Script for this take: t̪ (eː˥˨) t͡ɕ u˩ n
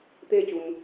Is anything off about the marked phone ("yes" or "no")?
no